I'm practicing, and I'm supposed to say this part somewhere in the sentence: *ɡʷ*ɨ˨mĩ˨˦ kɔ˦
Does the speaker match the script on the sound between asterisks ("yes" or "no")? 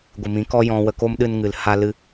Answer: yes